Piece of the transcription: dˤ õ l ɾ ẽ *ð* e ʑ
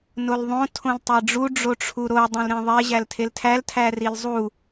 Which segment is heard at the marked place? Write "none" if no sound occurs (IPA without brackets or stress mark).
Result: ðˤ